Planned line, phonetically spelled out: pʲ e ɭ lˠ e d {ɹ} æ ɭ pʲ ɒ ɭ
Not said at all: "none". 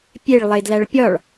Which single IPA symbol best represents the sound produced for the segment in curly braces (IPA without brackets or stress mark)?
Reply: l